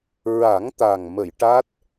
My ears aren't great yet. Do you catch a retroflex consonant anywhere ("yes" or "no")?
yes